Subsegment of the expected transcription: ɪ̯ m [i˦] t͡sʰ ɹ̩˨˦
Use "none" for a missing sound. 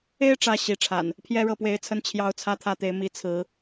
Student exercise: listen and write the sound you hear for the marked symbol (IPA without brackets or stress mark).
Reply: i˨˦